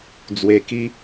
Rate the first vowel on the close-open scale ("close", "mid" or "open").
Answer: mid